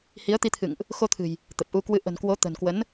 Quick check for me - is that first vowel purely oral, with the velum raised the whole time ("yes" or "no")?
yes